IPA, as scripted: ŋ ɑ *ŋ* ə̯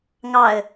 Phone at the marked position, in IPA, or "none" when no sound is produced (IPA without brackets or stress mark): none